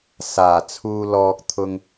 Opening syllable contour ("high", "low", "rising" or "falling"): low